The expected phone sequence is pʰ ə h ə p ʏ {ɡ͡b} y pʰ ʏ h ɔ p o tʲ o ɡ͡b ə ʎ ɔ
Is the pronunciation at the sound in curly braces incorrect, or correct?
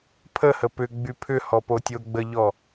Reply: correct